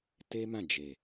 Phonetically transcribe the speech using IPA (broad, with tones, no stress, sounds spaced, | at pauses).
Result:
t e˦ m ã˦˨ d͡ʒ e˨